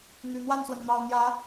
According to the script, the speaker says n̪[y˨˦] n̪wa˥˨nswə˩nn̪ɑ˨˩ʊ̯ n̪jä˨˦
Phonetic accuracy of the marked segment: incorrect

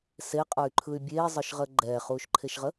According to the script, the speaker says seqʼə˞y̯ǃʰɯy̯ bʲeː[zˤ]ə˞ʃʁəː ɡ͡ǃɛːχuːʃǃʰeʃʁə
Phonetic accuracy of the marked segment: correct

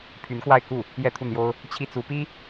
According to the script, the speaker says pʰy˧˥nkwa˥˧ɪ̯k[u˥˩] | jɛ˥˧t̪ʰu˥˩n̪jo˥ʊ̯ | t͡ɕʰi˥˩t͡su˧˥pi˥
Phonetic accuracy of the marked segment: correct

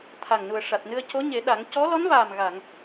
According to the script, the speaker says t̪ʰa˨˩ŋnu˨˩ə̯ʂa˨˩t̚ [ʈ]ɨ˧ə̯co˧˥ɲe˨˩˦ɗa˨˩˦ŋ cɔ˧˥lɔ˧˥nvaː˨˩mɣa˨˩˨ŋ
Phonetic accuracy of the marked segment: incorrect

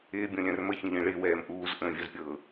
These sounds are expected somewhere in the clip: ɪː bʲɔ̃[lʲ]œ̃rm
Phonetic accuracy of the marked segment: correct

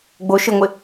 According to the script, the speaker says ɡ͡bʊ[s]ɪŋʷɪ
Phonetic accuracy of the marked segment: incorrect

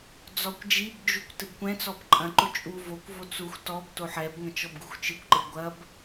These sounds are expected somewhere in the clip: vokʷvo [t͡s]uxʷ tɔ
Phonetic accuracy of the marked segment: correct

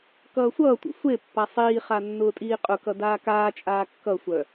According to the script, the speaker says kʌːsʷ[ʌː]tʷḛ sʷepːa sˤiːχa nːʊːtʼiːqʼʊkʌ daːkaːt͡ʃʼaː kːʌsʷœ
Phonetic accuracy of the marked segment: correct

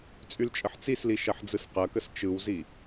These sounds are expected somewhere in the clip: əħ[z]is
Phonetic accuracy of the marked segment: incorrect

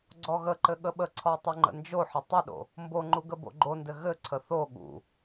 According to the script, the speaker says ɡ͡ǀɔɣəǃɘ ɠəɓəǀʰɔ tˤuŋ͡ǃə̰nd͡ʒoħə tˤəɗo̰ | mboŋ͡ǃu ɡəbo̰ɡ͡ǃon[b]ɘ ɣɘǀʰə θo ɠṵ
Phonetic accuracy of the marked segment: incorrect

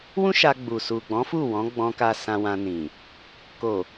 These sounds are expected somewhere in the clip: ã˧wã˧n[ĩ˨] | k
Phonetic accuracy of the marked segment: correct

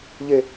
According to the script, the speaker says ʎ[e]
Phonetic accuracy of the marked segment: correct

